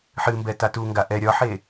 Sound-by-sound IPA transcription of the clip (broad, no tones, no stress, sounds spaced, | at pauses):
ħ ɨ m b ɛ t a t u ŋ ɡ a ʔ ɛ ɾʲ ɒ ħ e